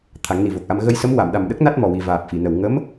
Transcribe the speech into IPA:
t̪ʰ a˨˩˦ ŋ n i˨˩ v o˨˩ k̚ ʔ a˧ m ɣ ə˧ j s ə˧˥ m w a˨˩˨ m ɗ a˨˩ m ɗ ə˦˥ k̚ n a˦˥ t̚ m ɔ˨˩ w i˨˩ v aː˨˩ p̚ f i˨˩˨ n ə˨˩ w ŋ ə˧˥ m

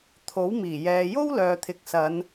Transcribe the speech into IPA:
t̪ʰ o˨˥ w m iː˨˩ j ɛː˨ j o˥ w l œː˨ t̪ʰ ɪ˨˥ k̚ s ɐ˨˧ n

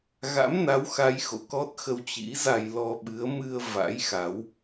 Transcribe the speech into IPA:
ɣ a̰˧˥ m n a˨˦ w x a˨˦ j x o̰˧˨ k ɔ˦˥ t̚ x ə˧ w t͡ɕ ḭ˧˥ z a˧ j l ɔ˧ ɓ ɨ˨˦ ə̯ m ɨ˧ ə̯ v a̰˧˥ j x a˨˦ w

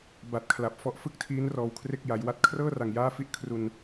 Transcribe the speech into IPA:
b a˨˩ t̚ kʰ l a˨˩ p̚ f ɔ˦˥ ʔ f ɯ˥˩ k̚ tʰ iː˦˥ n r ɔː˧ w kʰ r e˥˩ k̚ j a˩˦ j w a˦˥ t̚ kʰ r ɤː˥˩ r a˨˩ ŋ j aː˥˩ f i˦˥ ʔ kʰ r u˧ n

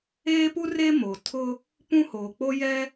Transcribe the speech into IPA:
eː˦ p u˦ r e˦ m o˨ tʰ ʊ˦ | p ũ˦ h oː˨ k͡p o˦ j ɛ˦

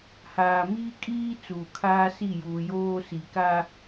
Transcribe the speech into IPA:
h aː˨ m iː˦ kʼ iː˦ t͡s uː˨ kʰ aː˦ s i˦˨ j uː˨ j oː˦ s i˨ k a˦

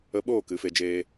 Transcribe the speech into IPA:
ə˧ ɓ oː˦˨ k ɨ˨˦ f e˧ d͡ʒ eː˦

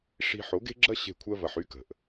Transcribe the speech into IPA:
ʂ i̤˧ ħ o˨˦ ɡ e̤˦ ɡ͡ǁ ɐ˦ ɕ e̤˦˨ kʷʰ ɜ˦ v ɐ˧ ħ y˦ k ə̤˨ ʔ

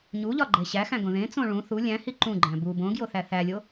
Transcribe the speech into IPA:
ɲ u ʎ ɒ ɡ͡ǃ e ɕ æ x æ̃ ɡ õ ð ẽ t͡s õ ɭ ũ θ u lʲ æ̃ h i ǃ ũ ɡ͡ǃ æ̃ b u b õ ɡ j o θ æ θ æ lʲ o

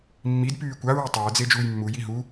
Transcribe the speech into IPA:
mː i d p yː kʷ a ɹ e tˤ a ə̯ d͡z e d͡ʒ uː j mː u j i ɦ u

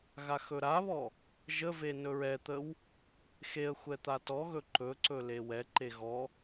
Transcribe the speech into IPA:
ɣ a x ɵ ɾ a β ɔ | ʒ ə v e n ɵ ɹ ɛ t̪ ə w | x e ə̯ xʷ ɛ t̪ a t ɔ ɣ ɵ ǃ ɵ ǀ ɵ l e w ɛ ǃ e ɣ ɔ

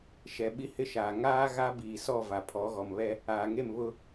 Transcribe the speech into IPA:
ʃ ɛ˨ ɓ i˦ h ɪ˦ ʃ aː˨ ŋ aː˦ ɣ a˦ b iː˨ s ɔ˦˨ v a˨ pʰ ɔ˨˦ ɣ ɔ˨ m β ɛ˦ | aː˨ ŋ e˦˨ m β ʊ˦

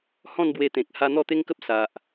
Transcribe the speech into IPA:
h ɔ̃˥˧ n b w e˧ t̪ ẽ˨ k̚ h a˧ n̪ ɔ˥˧ t̪ e˦ ŋ k ə˦ p̚ s a˨ ʔ

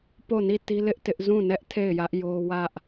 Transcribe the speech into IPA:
p o˦˨ n i˦˨ t i˦ l ɪ˦ ʔ t ɪ˦ ʔ z ũ˦˨ n ɛ˦ ʔ tʰ e˦˨ ɪ̯ j ä˦ ʔ j o˦ w ä˦ ʔ

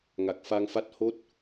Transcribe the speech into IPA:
ŋ a˨˩ k̚ f a˧ ŋ f a˦˥ t̚ h o˦˥ t̚

